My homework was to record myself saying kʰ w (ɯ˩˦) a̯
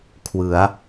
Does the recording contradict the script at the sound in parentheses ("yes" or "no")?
no